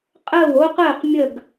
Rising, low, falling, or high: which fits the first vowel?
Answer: falling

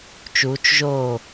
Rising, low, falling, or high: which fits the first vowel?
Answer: rising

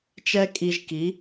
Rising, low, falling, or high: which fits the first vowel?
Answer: high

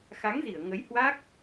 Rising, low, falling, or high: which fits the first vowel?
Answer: rising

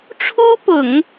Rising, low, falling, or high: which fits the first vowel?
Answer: high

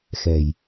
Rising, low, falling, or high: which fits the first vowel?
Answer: low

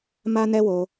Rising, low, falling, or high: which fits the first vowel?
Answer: high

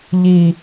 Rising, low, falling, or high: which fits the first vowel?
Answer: low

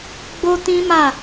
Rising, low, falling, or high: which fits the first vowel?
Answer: high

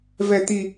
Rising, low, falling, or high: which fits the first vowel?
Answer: low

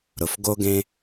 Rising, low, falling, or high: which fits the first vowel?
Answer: low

